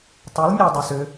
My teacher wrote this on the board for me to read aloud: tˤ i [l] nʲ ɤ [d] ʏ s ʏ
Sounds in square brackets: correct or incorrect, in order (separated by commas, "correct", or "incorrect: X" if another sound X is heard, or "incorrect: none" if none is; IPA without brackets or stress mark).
correct, incorrect: dˤ